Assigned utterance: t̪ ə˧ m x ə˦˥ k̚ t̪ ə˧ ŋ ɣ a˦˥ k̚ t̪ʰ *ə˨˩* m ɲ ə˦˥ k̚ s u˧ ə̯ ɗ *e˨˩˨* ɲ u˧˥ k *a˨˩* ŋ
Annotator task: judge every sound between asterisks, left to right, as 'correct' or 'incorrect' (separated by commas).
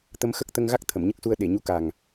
incorrect, correct, correct